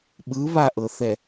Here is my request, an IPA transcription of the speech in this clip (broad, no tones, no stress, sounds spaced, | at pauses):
ɓ ɯ β a ʔ ɤ θ ɛ